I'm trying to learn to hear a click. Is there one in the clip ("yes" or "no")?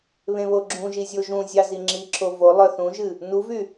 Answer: yes